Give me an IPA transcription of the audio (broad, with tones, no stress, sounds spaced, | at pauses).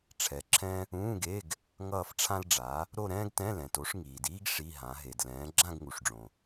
ʈ͡ʂʰ ɛ˩˥ ǁʰ ɛ̃˥ | ũː˧˥˧ ɡ e˧˥˧ ɡ | ŋ ʌː˥˧ f ʈ͡ʂʰ ã˥ l ɖ͡ʐ a˩˥ | ɾ o˥˧ ɾ ɛ̃ː˥ ɡ t ɛ̃˧˥˧ l ɛ̃˩ t o˩˥ ʂ ŋ iː˩ d iː˥ ɡ ʂ i˧˥˧ ɦ ã˩˥ ɦ e˩ d l ɛ̃ː˩˥ ɡ͡ǁ ã˥˧ ɡ ŋ u˩ ʂ ɖ͡ʐ õ˩